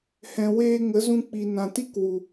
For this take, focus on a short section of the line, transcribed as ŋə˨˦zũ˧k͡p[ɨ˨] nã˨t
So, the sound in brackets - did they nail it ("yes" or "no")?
no